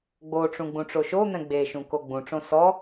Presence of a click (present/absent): absent